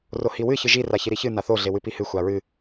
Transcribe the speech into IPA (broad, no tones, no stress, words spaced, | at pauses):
rohiwɨ çɨʒi raçiɾiçɨ naθo ɮewɨpihɨ xʷaɹɨ